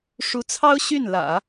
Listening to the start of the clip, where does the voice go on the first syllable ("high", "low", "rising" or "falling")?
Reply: rising